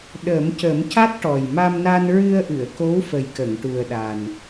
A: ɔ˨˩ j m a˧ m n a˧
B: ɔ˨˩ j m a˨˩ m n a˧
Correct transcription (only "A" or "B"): A